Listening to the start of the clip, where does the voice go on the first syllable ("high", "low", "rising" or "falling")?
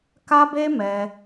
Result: high